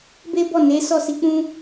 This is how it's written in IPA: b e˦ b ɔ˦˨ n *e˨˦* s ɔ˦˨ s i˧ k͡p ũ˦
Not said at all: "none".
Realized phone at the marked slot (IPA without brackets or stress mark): e˨˦